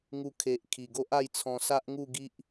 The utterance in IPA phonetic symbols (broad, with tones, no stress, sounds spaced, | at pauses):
ŋ u˧ kʰ e˨ ʔ kʰ i˨˩ ɡ o˦ ʔ a˥˧ j t͡sʰ ɔ̃˧ s a˦ ʔ ŋ u˥˧ ɡ i˦ ʔ